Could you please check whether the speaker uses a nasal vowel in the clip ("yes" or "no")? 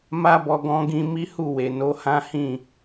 yes